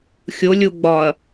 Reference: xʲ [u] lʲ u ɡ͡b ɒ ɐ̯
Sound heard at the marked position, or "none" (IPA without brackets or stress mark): o